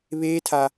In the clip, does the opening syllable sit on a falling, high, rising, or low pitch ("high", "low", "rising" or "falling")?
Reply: high